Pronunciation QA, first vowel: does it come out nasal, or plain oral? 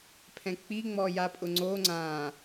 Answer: nasal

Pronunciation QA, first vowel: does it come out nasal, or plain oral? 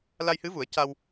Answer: oral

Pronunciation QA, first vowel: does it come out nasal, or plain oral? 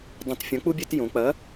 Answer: nasal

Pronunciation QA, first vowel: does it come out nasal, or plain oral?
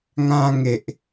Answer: nasal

